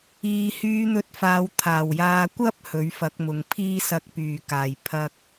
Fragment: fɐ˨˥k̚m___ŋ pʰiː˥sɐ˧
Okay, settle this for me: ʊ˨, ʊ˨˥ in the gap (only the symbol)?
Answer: ʊ˨